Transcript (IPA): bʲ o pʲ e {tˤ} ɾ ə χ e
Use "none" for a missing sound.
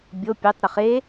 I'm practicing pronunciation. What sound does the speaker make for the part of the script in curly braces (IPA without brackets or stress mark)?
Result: tˤ